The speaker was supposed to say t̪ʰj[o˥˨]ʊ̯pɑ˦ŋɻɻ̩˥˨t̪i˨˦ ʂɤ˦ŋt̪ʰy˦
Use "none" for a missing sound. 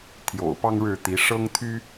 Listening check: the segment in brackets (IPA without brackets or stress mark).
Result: o̰˨˩